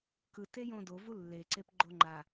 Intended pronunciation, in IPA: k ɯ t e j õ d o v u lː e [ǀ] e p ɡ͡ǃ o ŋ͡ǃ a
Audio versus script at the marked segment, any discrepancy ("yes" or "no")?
no